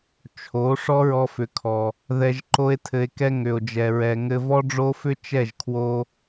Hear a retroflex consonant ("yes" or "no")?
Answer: yes